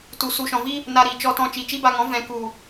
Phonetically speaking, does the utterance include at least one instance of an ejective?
no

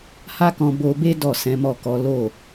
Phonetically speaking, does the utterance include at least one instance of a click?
no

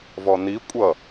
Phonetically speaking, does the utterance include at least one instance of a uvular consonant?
no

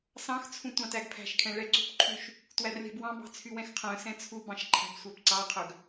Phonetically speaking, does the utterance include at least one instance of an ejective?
no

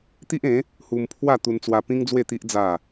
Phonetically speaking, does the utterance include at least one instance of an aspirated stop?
yes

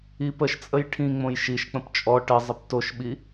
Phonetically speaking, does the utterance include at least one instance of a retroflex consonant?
yes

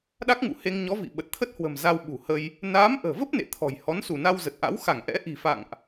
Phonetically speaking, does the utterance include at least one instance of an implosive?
yes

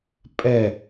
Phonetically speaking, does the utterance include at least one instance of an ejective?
yes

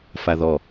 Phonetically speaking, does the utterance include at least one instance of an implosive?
no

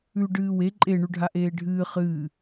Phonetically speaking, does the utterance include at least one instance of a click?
yes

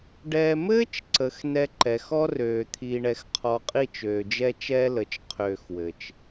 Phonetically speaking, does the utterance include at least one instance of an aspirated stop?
yes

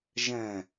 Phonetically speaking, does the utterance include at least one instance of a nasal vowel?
yes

